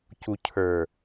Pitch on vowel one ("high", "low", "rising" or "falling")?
low